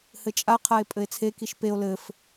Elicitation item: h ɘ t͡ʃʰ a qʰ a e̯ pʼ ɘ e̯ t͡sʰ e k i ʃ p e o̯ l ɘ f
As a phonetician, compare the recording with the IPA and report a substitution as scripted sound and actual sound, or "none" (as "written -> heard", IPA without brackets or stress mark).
t͡ʃʰ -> t͡ʃʼ